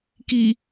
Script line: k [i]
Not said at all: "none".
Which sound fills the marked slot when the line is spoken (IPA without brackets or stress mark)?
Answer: i